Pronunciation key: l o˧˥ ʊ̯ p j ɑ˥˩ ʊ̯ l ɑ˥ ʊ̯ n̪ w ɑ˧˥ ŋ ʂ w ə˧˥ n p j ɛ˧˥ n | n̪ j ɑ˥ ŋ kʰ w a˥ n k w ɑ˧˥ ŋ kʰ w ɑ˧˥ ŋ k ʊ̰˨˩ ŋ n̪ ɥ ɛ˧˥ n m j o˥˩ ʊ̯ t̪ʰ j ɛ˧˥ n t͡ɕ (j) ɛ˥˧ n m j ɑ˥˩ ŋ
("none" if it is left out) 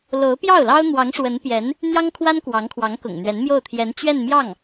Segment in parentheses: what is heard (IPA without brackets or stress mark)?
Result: ɥ